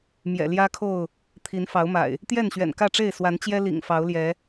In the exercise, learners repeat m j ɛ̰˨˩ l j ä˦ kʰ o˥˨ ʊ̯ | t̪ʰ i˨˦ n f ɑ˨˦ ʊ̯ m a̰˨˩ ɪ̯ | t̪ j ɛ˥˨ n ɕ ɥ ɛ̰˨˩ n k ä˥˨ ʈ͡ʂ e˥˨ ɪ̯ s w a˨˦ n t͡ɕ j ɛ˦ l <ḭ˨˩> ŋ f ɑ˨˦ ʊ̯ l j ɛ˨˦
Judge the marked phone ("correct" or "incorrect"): correct